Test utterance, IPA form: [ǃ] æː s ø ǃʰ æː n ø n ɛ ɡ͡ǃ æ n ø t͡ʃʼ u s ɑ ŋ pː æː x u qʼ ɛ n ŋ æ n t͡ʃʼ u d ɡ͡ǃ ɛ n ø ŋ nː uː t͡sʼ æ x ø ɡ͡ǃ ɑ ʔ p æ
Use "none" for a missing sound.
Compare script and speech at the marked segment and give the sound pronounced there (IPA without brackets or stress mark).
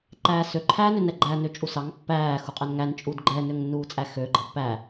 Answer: ǃ